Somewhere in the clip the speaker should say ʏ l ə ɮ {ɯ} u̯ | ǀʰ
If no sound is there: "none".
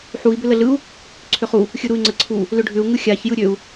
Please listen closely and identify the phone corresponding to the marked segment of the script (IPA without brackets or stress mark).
ɯ